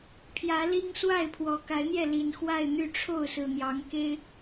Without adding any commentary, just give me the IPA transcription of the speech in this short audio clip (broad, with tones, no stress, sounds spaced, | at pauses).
pʰ j ä˨˦ l i˦ ŋ s w a˥˨ ɪ̯ pʰ w ɔ˨˩ k a˨˦ ɪ̯ n̪ j ɛ˥˨ l i˨˩ n x w a˥˨ ɪ̯ n̪ y˥˨ ʈ͡ʂʰ o˥˨ ʊ̯ s ɹ̩˨˩ n̪ j ɑ˨˦ ŋ k e˦ ɪ̯